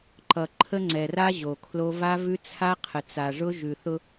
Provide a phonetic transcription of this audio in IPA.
ǃ ʌ˨ ǃʰ ə˦ ŋ͡ǀ ɛ˨ r a˦ ʑ o˨ kʰ l o˦ v a˦ v ʉ˦ t͡sʰ a˦ qʰ ə˨ t͡s a˨ ʐ ʊ˦ ʒ ʉ˨ θ ʊ˦

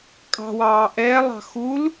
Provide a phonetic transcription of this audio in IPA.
kʼ ɑ̤ w ɑː ʔ ɛː lˠ ɑ̤ x u l

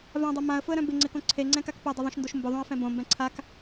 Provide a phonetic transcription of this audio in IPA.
v ã dˤ ʌ m ã ə̯ f ʊ ə̯ ɾ œ̃ b ɪ ŋ͡ǀ ɪ k õ ǀʰ e ŋ͡ǀ ɛ̃ k a k p ɛ dˤ ʌ ðˤ õ ʃ n d o ʃ m b ʊ ðˤ õ ə̯ f ɛ̃ b õ m b ɛ̃ ǀʰ a k

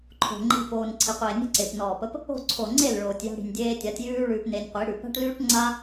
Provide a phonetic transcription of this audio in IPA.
ǃʰ o̤˨ ŋ͡ǃ i̤˧ p oː˨ n ǀʰ i˨ qʷ eː˨ nʲ e̤˦ ǀ e˨ p n ɔː˨ p ə˧ p | o̤˦˨ ǀʰ o˨ ŋ͡ǀ e˦˨ l ɭ oː˨ tʲ j a̤˧ ɽ i̤˨ nʲ dʲ eː˧ tʲ a˨˦ tʲ j ʉː˦ ɭ ʉː˧ p n e˧ nʲ qʷ i˨˦ ɽ ʉ˨ p a̤˦ ʈ l ʉː˦ ʈ ŋ͡ǀ a˦

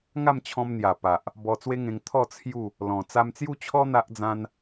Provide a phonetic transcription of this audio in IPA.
ŋ a˥˧ m t͡ɕʰ ɔ̃˧ m n̪ j a˨˩ p a˨ ʔ | b ɔ˧ t͡s w e˦ ŋ ẽ˧ ŋ t̪ʰ ɔ˥˧ t͡sʰ j u˥˧ | l ɔ̃˨˩ t͡s a˧ m t͡s j u˦ t͡ɕʰ ɔ˦ n̪ a˦ ʔ d͡z ã˦ n

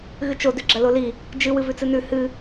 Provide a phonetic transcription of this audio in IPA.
ɣ ɨ t͡ʃ o d ʉ ɡ͡ǁ ɐ l o l i | d͡ʒ ɨ w ɨ v ʉ t͡s ɨ n ʉ h ɨ

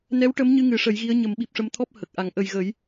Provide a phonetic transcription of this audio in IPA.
n ɛ˧˥ w ʈ ə˧˥ m ɲ ɨ˧ ŋ ɨ˨˩˦ ʂ ə˨˩˦ j ɣ i˧˥ ə̯ ɲ ə˨˩˦ m ɓ i˨˩ p̚ ʂ ə˧ m t̪ʰ ɔ˦˥ p̚ h ə˨˩ k̚ ʔ a˨˩˦ ŋ ʔ ə˨˩ j ɣ ə˨˩˦ j

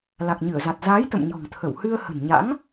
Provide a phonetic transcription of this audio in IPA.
l a˨˩ k̚ ɲ ɨ˧˩ ə̯ z a˨˩ t̚ z aː˨˦ j t̪ ə̰˧˨ m ɲ ɔ̤˨˩ ŋ t̪ʰ ə˧˩ w h ɨ˧ ə̯ h ə̤˨˩ n ɲ a̰˧˥ ŋ

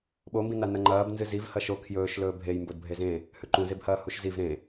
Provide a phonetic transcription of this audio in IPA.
ɓ o m b ĩ n a n ɐ ŋ͡ǃ ɐː b n z ɨ z i v h ɐ ʃ o kʰ j ɵː ʃ l ɵː bʱ e j m b o d bʱ e z ẽ | h ʉ ǃ ũ z e b h ɐː h u ʃ z i v ɾ ẽ

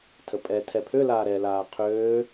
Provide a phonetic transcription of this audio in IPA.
tʰ ə pʼ ɛ tʰ ɛ pʰ ø l aː ɾ ɛ l aː qʰ øː

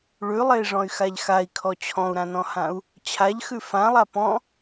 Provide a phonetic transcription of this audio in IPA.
ɭ ʉ lˠ e i̯ ʐ ɔ̃ y̯ x a ʎ x a i̯ kʰ ɔ t͡ɕʰ ɔ̃ u̯ ɾ ã n ɔ̃ h ã u̯ | t͡ɕʰ a ʎ x ʉ f ã lˠ a p ɔ̃

